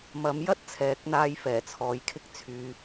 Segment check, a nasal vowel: absent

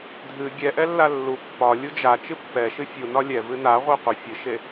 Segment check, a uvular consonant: present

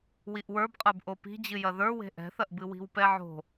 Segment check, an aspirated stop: absent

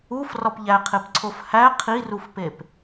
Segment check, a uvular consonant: present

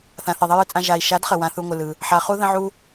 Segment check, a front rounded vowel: absent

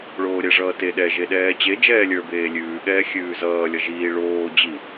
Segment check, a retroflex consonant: present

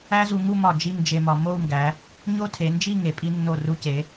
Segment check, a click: absent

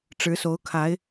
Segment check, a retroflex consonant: present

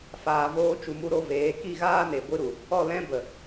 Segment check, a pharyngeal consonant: absent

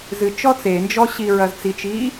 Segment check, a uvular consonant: absent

